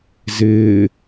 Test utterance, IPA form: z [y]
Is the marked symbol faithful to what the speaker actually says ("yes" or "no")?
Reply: no